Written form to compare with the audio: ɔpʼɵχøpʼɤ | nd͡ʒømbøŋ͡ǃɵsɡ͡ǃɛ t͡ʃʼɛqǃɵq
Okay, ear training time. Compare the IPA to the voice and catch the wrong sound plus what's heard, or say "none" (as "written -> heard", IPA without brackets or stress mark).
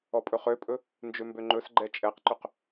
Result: ɤ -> ɵ